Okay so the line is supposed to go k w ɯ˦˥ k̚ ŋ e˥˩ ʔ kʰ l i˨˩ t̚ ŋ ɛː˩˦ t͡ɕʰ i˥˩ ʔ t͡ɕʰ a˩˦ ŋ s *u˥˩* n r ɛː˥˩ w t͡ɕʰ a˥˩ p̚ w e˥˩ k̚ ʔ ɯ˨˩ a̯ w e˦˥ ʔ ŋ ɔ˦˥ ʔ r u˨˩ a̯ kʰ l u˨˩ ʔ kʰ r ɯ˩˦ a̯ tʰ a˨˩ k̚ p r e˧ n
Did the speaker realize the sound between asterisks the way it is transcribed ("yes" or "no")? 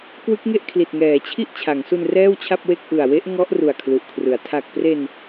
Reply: no